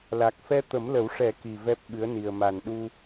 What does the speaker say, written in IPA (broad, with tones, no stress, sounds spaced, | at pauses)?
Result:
l a˨˩ k̚ f ɛ˧ t̪ ə˨˩˦ m l ə˨˩˦ w ʂ ɛ˨˩˦ k i˨˩ v ɛ˦˥ p̚ ɓ ɨ˧˥ ə̯ n i˨˩ ə̯ m a˨˩ n ɗ u˧